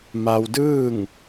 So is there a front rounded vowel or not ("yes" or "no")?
no